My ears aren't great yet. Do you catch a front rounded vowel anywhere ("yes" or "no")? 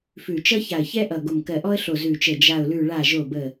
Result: no